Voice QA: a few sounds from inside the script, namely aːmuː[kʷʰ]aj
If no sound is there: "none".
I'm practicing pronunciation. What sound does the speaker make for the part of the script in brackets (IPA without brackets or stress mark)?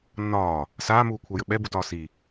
kʷʰ